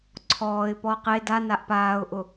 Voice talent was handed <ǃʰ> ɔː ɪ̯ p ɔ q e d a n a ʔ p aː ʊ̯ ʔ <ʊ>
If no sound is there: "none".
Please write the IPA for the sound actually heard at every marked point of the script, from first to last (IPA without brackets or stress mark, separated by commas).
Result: ǀʰ, ʊ